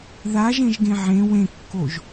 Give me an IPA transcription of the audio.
ð a ʒ ẽ ʒ ɡ ẽ ʕ ẽ w ẽ kː o ʒ

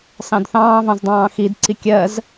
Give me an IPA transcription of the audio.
s ɑ̃ d θ ɑ̃ː v ɑ̃ z dˤ ɑ̃ː x i d ǀ i kʲ ɜ z

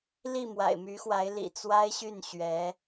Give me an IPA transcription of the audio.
l i˥˩ m w a̰˨˩ ɪ̯ m y˧˥ x w a˧˥ ɪ̯ l ḭ˨˩ t͡s w a˥ ɪ̯ ɕ y˥˩ n ɕ ɥ ɛ˧˥

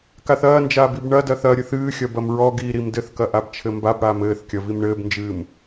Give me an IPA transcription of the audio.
k a θ ɐː n d͡ʒ aː b i b ɳ ɐ d ɐ θ ɐ ɾʲ ɨ θ ɨː xʲ ɐ b ɐ m ɹ ɔ ɡ iː ɾ i m d ɘ θ k ɐ ʔ a b t͡ʃʰ ɘ m b a b ɽ aː m ɘː θ kʲ ɐ v i m ɳ ɘː b n d͡ʒ ɨː m

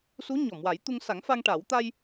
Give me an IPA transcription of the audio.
s u˧˥ ɲ ɔ˨˩˨ m w a˨˩˦ j t̪ u˧ ŋ s a˨˩˦ ŋ f a˧ ŋ ʈ a˨˩˦ w t̪ a˧ j

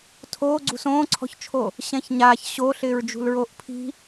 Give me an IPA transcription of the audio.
tʰ oː ɡ͡ǀ ṳ s õː ǀʰ ɔ̤ ç t͡ʃʰ o | ɕ ɛ̃ ç ɲ aː ç ɕ o ɬ ɪː ɹ d͡ʒ ṳ l ɹ oː ʔ pʰ i̤

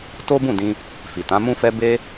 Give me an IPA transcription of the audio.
t o˦ b ũ˦˨ d ĩ˧ | f i˨ t ã˨˦ m ũ˦ f ɛ˦ b e˦

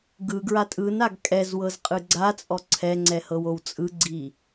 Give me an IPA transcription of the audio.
ɡ ɯ ɡ ɹ a tʼ ɯ n a ɡ kʼ ɛ z w ɤ z qʼ ɯ ɡ͡ǀ a t͡sʼ ɔ ǀʰ ɛ ŋ͡ǀ ɛ h ɤ w o w t͡sʼ ɯ ɡ͡ǀ i

